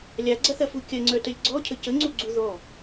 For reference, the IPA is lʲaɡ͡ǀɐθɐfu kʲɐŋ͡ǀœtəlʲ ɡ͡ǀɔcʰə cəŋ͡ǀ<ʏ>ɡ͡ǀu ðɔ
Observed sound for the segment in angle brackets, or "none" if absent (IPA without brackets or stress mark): u